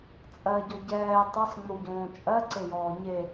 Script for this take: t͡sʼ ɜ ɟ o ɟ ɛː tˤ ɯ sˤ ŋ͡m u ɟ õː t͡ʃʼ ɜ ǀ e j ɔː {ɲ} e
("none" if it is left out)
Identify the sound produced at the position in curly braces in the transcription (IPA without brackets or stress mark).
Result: ɲ